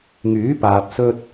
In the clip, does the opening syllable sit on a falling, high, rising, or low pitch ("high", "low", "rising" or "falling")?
rising